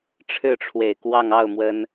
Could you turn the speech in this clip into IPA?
ʈ͡ʂʰɻ̩˥˩ʈ͡ʂʰwe˨˩ɪ̯kwɑ˥˧ŋ ɑ˥˩ʊ̯ mwə˥n

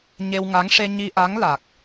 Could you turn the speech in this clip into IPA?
ɲe˧wŋa˧˥ŋ ʂe˧ɲi˧ʔa˧˥ŋ la˨˩k̚

